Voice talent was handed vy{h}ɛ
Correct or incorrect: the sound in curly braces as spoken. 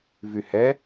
correct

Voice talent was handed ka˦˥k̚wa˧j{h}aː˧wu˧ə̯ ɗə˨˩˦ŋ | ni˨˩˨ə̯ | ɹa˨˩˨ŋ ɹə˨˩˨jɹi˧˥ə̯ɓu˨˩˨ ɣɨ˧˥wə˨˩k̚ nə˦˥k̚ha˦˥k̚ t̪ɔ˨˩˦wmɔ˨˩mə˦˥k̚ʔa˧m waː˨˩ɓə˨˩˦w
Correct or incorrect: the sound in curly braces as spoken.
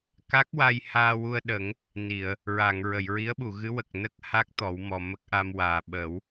correct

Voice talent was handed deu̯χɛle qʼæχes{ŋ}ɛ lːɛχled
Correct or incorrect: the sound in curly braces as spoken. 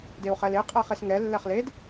correct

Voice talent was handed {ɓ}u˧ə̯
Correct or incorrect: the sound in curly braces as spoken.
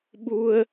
correct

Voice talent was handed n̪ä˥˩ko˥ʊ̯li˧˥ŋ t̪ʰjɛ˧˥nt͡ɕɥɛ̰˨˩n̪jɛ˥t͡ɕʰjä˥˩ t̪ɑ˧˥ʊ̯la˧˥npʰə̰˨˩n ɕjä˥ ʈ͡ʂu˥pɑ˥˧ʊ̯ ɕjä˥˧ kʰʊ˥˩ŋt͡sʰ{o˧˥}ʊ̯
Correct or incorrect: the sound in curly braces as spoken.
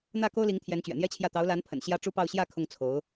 correct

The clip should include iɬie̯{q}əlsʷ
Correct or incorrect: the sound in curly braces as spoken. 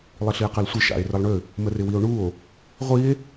correct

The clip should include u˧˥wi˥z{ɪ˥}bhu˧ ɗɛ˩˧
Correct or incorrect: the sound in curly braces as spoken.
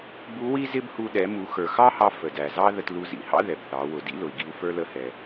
correct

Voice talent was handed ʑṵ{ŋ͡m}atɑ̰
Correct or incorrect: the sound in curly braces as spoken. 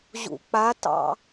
incorrect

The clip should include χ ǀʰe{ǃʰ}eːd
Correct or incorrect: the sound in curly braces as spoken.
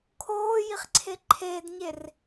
correct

